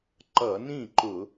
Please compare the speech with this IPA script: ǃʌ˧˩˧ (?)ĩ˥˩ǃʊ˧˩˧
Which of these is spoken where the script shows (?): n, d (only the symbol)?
n